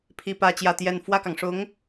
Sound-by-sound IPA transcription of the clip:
pʰi˥pä˥t͡ɕjä˥˧t̪jɛ˥˧n fwä˥˩kɑ˩ŋʂʊ˧˥ŋ

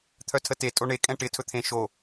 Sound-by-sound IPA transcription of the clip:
t̪ʰœtʰəte tʼoɳe kʼɛ̃ʈɪ tʰɵt̪ʰẽ ʃo

